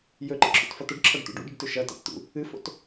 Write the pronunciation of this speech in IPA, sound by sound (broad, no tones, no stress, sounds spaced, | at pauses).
j ɵ ǃ ḛ ǁʰ ṵ t f ɐ t̪ ɵ ɖ ǁʰ ɐ ɖ t̪ ṵ ɖ ṵ ɖ ɨ ɖ t ʉ ʃ ɐ t a̰ t t̪ ṵ | ɨ f o̰ t